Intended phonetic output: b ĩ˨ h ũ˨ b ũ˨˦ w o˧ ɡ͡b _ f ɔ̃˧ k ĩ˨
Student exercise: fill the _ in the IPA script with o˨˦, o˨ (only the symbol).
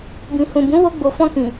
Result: o˨